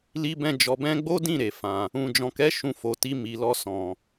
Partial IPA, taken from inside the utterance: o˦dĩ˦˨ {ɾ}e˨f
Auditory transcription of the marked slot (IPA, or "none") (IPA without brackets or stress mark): ɾ